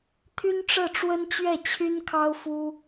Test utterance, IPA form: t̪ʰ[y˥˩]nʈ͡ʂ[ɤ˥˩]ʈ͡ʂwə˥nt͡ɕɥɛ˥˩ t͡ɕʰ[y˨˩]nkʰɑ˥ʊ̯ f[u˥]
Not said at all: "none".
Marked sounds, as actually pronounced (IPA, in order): y˥, ɤ˥˩, y˥, u˥

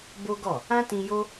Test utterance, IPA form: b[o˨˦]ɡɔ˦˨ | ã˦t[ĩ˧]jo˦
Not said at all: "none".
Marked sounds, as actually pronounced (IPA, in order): o˦, ĩ˧

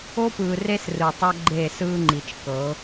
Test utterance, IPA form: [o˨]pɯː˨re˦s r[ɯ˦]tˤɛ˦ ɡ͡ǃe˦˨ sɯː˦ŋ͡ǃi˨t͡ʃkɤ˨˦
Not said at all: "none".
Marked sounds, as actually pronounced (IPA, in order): o˦, ɯ˨

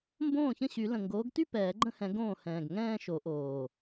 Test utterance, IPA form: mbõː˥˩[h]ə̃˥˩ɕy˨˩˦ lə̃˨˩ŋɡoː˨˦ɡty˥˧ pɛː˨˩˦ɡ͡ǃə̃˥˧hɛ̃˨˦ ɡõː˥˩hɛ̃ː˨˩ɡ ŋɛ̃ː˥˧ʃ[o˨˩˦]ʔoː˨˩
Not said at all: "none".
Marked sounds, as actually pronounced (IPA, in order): ç, o˨˩˦

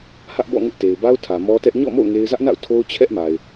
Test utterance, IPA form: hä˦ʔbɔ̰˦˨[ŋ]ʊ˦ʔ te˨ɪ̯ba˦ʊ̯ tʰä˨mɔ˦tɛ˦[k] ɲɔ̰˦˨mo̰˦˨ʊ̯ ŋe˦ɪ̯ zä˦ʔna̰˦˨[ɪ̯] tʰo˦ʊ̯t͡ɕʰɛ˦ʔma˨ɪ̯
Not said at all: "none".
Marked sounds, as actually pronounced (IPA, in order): ŋ, ʔ, ʊ̯

